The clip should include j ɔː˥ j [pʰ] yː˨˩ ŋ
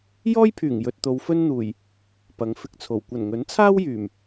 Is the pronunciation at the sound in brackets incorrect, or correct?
correct